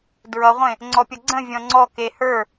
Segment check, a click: present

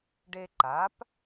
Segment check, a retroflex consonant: present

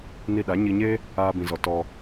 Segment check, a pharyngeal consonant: absent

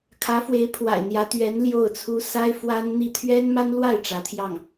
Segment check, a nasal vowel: absent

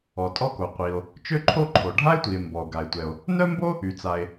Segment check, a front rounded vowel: present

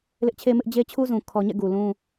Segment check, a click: absent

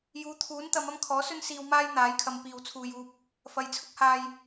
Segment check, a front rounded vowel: absent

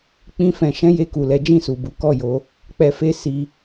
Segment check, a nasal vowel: present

